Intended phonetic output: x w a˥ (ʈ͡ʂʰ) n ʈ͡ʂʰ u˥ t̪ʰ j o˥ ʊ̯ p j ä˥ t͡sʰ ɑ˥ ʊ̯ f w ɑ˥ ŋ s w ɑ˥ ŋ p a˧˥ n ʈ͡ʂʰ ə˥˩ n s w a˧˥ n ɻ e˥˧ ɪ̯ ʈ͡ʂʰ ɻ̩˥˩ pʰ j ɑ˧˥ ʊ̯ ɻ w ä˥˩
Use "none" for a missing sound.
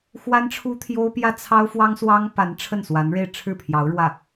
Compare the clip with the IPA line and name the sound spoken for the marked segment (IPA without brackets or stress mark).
none